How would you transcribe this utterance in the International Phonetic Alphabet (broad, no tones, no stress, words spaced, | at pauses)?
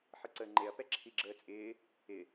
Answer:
ħəǀəːŋ͡ǃeɐ̯ pɛǁʰiɡ͡ǁəːt͡sʼɪː | ɪ